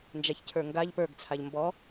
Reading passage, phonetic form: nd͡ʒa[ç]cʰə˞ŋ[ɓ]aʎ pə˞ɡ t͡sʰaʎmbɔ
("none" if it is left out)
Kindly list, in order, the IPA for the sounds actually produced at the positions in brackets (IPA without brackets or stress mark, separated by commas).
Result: ç, ɡ